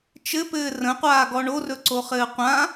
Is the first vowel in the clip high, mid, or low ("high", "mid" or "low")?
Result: mid